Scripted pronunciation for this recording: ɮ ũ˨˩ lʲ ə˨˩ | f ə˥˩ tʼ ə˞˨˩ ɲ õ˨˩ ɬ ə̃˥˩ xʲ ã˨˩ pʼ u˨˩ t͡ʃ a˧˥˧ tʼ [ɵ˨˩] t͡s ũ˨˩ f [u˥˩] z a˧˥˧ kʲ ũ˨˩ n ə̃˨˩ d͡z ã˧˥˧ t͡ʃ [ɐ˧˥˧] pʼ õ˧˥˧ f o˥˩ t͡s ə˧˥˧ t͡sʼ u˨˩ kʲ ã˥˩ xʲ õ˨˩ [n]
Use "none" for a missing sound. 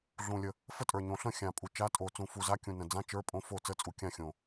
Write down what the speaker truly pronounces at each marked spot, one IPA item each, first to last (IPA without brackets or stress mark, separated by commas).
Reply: o˨˩, u˨˩, ə˞˧˥˧, none